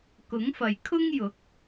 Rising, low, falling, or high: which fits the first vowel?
rising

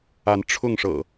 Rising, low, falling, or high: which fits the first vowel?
rising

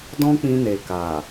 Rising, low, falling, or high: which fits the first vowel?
high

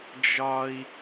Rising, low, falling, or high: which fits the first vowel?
low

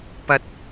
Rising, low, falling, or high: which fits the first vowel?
high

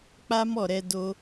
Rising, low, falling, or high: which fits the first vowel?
high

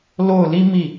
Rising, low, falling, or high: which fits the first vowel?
falling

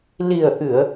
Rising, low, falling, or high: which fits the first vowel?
low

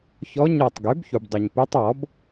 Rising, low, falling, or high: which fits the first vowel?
rising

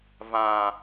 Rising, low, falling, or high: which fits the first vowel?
low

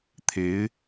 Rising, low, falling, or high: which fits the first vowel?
rising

